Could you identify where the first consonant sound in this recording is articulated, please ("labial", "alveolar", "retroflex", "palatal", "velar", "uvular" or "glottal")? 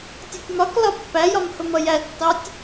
alveolar